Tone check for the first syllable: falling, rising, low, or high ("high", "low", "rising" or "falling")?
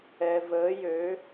low